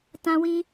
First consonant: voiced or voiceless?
voiceless